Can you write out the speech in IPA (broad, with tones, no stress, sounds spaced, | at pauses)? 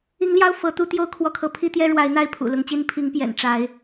i˨˦ ŋ l j ɑ˦ ʊ̯ f ɤ˨˦ t̪ u˦ t̪ j o˥˨ ʊ̯ kʰ w ɔ˥˨ kʰ ɤ˨˦ pʰ i˦ t̪ j ɛ˦ ɻ w a˨˦ ɪ̯ n̪ a˥˨ ɪ̯ pʰ ṵ˨˩ l ʊ˨˦ ŋ t͡ɕ i˦ n pʰ i˨˦ ŋ p j ɛ̰˨˩ n ʈ͡ʂ a˨˦ ɪ̯